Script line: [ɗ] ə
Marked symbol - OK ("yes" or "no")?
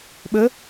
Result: no